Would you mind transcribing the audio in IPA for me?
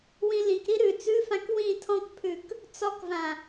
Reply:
wĩlĩkɾi ɾʉ t͡sʉfãk wĩ tʰɔ̃kpʰʉk | t͡sɔkvã

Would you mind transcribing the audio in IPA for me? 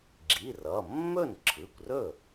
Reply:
ɡ͡ǁi˩˧˩r ʌ˩˧˩ mːɵ˥˩nǁʰɯ˩˧˩kʷrɵ˥˩

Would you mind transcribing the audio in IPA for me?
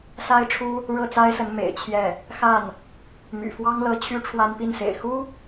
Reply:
sa˥ɪ̯ʈ͡ʂʰu˥ | ɻɤ˥˩t͡sa˥ɪ̯sə˧˥n mḛ˨˩ɪ̯ t͡ɕʰjɛ˥˩ | xa˥˩n | my̰˨˩fwɑ˥ŋlɤ˧˥ t͡ɕʰy˥ʈ͡ʂʰwa˥npi˥˩nsḛ˨˩ɪ̯ xu˥

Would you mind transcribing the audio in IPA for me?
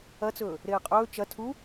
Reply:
ɐt͡sɵː | ɾeːqʼɵː t͡ʃɐ tʰu

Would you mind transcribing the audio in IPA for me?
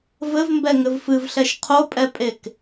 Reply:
vɘvmbɛ ŋɘvfɨvɬɛʃ qʰopʼɛpʼek

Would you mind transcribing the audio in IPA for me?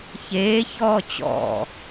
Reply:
çeːçɔː t͡ɕɔ̰

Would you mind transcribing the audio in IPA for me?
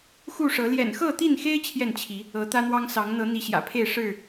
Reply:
xu˥˨ʂɤ˨˦ ljɛ̰˨˩nxɤ˥˨t̪i˥˨nxe˦ɪ̯ t͡ɕʰjɛ˥˨nt͡ɕʰi˨˦ | ɤ˨˦t̪ä˦n̪wɑ˦ŋ sɑ˨˦ŋn̪ɤ˨˦ n̪i˨˦ɕjä̰˨˩pʰe˥˨ɪ̯ ʂɻ̩˥˨

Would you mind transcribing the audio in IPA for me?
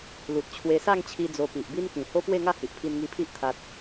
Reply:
lu˨t̚ t͡ɕʰwe˧sa˥˧ŋt͡ɕʰi˧ d͡zo˧pi˨ʔ bi˦nkĩ˨˩ ho˦pwe˥˧ŋa˥˧ hi˨ʔpʰi˧nŋi˧pʰi˦ʔ t̪ʰa˦t̚

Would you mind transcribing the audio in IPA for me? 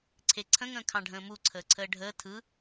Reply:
ǀʰeǀʰə̃ŋə̃ː kʰɑ̃ɖʱə̃ːmu ǀʰəːǀʰəːɖʱəː tʰɯ

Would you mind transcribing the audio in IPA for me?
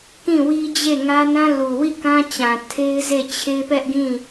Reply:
kĩ˦˨wi˦d͡ʑe˦˨ ŋä˦nã˦ lu˨wi˦˨kã˦t͡ɕã˨ tʰe˦ɪ̯ze˦˨t͡ɕʰe˦ pɛ˦ʔɡĩ˦˨

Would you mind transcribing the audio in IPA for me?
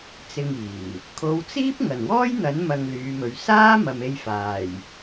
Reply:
t͡sɪ˧ŋiː˨˩ | kʰo˨˧wt͡siː˥p̚ ŋɐ˨˩nwɔː˥jn̪ɐ˨˥n mɐ˧ŋlyː˨˧mɵ˨˧ɥ saː˥ mɐ˨me˧jfaː˨˩j

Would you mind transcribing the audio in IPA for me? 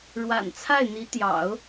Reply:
ɻwa̰˨˩nt͡sʰa˥˩ɪ̯n̪i˧˥ t̪jɑ̰˨˩˦ʊ̯

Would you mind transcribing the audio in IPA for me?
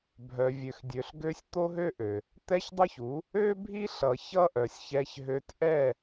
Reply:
bʱœ˨vʲø˨xdʲø˨ɬɡø˧sʲ t̪o˦ɦø˦ʔø˨ | t̪ɛ˦çdˤo˦çu˨˦ | ø˦bʱi˦ɬʌ˨ çʌ˦ʔœ˨sʲçɛ˧çɦø˧t ʔɛ˦˨

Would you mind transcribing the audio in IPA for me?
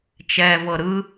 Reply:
t͡ʃɛ vɤɾɯ

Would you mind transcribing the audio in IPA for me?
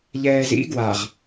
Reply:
ʎɛːzḭ ɡwaʁ

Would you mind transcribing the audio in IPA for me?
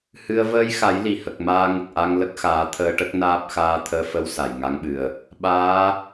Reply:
hɨ˧ə̯ vəː˧jxa˨˩˦j li˨˩hə˨˩k̚ maː˧ŋə˨˩k̚ʔa˧ŋ lə˦˥k̚xaː˨˩˦t̪ʰəː˧ʈə˦˥k̚ naː˦˥p̚xaː˧ t̪ʰəː˧fə˧˥w sa˨˩jŋa˧˥ŋɓɨ˨˩ə̯ | ɓaː˧˥

